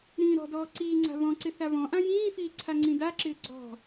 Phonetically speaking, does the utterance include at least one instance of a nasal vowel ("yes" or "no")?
yes